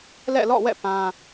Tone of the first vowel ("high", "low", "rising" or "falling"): falling